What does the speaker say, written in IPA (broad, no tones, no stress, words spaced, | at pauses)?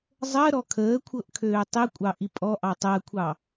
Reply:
zˤəːɾɔ kʰəːkʷʰɤʔ kʰøːtˤikʷʼɑ ʔipʼɔʔɑ tˤəːkʷʰɑ